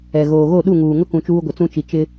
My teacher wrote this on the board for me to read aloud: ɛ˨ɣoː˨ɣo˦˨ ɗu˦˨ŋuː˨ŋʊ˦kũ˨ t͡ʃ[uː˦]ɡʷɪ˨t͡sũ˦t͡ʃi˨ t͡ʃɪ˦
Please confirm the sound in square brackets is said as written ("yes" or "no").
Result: yes